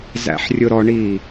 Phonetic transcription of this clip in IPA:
z æ̰ ħ rʲ ʊ ɾ ɔ ɳ i

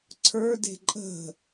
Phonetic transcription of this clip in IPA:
ǀʰ ə˞ d e̤ ǃʼ ə̤

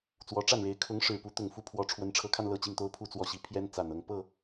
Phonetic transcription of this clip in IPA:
t͡s w ɔ˧˥ ʈ͡ʂ a˥˩ n ɻ e˧˥ ɪ̯ kʰ ʊ˧˥ ŋ ʂ ɻ̩˨˩ p u˧˥ t̪ ʊ˨˩ ŋ f u˥˩ pʰ w ɔ˧˥ ʈ͡ʂʰ w ə˧˥ n ʈ͡ʂʰ ɤ˧˥ kʰ a˧ n l ɤ˥˧ t͡ɕ i˥˩ ŋ t̪ o˥ ʊ̯ pʰ u˥˧ t͡s w ɔ˥˧ ɕ i˥˩ pʰ j ɛ˥ n t͡s a˨˩ n ɤ˥˧ ŋ p ɤ˥˩

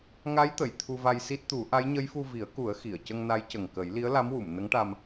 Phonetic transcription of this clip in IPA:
ŋ a˧˥ j t̪ ə˨˩˨ j t̪ʰ u˧ v a˧ j s i˦˥ t̚ t̪ u˨˩˦ ʔ a˧˥ j ɲ ə˧˥ j f u˧ v i˨˩˦ ə̯ k u˨˩˦ ə̯ x i˨˩˨ ə̯ c ə˧ ŋ n a˧˥ j c ə˨˩ ŋ k ə˨˩˦ j l i˧˥ ə̯ l a˧˥ m w u˨˩˨ m n ə˧˥ ŋ ʈ a˧ m

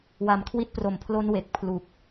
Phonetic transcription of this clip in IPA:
w a˨˩ m kʰ w i˦˥ t̚ p r o˨˩ m pʰ l o˦˥ n w e˨˩ k̚ pʰ l u˨˩ k̚

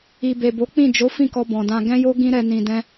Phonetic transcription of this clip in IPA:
i˨ b e˨ b o˨˦ k͡p ĩ˦˨ d͡ʒ o˨˦ f ĩ˦˨ k ɔ˧ b ɔ̃˨ d ã˧ ɡ ɛ̃˦ j o˦ ɡ ĩ˦ ɾ ɛ˧ n ĩ˧ d ɛ̃˦

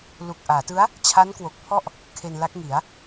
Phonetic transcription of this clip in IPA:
l u˨˩ k̚ ʔ aː˩˦ t ɯ˦˥ a̯ | t͡ɕʰ a˦˥ n k w o˨˩ k̚ pʰ ɔ˥˩ ʔ | kʰ e˧ n l a˦˥ k̚ ŋ i˩˦ a̯

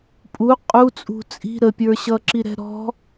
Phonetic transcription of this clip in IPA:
pʼ u qʼ u t͡sʼ ṳ t͡sʼ i̤ ɾ ə pʲ ə˞ ɕ ʌ ǁ i ɾ ɛ̤ ɾ ɔ̤

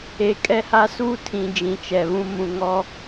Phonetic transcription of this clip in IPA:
e˨ kʼ ɛ˦ h a˦ s uː˦ tʰ ĩ˨ d͡ʒ ĩ˨ t͡ʃ ɛ˨ β ũ˦ m ũ˨ ŋ ɔ˦

